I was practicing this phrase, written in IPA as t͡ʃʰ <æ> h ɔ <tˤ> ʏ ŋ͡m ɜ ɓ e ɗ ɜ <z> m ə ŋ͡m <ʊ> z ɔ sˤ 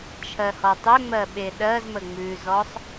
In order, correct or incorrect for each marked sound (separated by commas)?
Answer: incorrect, correct, correct, incorrect